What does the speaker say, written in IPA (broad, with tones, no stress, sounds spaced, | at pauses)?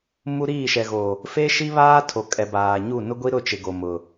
m u˦ ɾ iː˦˨ ʃ ɛ˨ ɣ o˨ | f e˦ ʃ i˦ β aː˦ tʰ o˨ kʼ ɛ˨ b aː˨ ɲ u˦˨ n ʊ˦ ɡʷ i˦ ɾ ʊ˦˨ t͡ʃ ɪ˨ ɡ o˨ m ʊ˨